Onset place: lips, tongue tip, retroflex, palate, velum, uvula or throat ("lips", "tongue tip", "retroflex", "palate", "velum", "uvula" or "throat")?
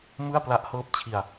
lips